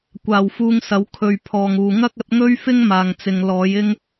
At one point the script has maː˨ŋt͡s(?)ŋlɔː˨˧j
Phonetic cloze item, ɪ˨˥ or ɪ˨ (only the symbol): ɪ˨